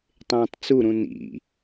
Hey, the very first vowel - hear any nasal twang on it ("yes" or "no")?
yes